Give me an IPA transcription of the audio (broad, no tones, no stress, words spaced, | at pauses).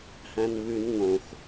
hæ̃nβʉn ŋõx